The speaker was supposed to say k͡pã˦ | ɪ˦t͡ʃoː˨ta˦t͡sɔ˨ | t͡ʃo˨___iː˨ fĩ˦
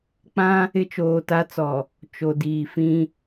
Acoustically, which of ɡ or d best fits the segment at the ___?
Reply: d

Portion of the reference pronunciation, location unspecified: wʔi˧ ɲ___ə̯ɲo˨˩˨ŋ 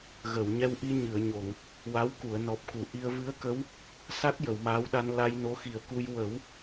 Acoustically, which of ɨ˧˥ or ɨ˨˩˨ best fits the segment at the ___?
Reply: ɨ˨˩˨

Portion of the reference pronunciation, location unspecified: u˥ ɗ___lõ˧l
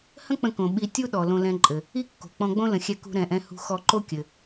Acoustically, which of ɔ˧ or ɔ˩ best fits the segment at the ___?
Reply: ɔ˩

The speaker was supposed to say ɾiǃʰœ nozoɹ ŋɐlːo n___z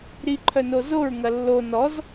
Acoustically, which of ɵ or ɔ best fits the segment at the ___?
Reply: ɔ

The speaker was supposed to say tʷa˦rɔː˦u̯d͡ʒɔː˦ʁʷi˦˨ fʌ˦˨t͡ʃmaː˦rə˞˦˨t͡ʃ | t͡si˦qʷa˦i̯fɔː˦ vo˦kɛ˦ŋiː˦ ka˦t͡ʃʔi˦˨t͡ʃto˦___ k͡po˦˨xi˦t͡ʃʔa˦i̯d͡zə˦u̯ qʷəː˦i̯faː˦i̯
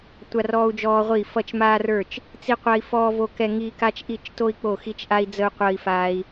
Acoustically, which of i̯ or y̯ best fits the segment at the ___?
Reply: i̯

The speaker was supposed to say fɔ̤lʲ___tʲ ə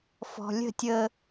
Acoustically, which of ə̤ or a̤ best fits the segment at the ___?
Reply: ə̤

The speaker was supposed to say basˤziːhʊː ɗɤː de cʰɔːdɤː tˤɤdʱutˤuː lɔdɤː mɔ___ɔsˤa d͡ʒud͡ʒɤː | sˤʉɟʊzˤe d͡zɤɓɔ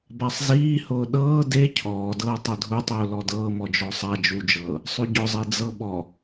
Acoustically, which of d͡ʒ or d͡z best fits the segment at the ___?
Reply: d͡ʒ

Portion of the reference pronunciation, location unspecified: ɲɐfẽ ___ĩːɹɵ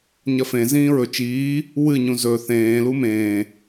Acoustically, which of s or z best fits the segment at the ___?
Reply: z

